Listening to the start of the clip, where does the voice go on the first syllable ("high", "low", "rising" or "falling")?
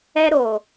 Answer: high